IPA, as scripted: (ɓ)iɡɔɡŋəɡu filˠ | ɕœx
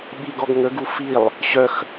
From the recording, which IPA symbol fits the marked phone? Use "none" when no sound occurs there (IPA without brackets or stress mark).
ɓ